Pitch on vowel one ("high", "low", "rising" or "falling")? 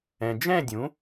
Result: low